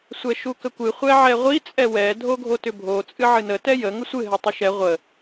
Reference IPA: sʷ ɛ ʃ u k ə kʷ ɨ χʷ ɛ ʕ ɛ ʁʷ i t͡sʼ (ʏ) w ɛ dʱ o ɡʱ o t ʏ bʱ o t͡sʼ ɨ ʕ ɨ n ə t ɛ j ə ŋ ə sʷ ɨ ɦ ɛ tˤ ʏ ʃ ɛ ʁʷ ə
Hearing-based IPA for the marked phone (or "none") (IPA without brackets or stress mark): ɛ